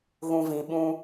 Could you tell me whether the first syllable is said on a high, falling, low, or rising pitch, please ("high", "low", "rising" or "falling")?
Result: low